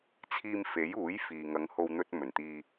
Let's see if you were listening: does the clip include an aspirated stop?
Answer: yes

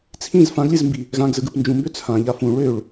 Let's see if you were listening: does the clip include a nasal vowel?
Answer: yes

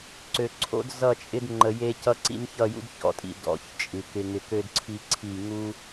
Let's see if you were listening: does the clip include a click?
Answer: yes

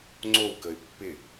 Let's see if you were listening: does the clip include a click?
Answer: yes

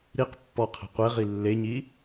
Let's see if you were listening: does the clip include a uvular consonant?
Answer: yes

